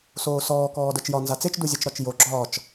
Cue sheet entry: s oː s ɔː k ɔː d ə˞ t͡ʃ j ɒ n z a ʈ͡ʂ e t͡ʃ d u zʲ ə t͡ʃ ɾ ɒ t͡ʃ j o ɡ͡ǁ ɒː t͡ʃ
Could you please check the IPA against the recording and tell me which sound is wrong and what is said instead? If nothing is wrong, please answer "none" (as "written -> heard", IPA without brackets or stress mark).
ʈ͡ʂ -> t͡s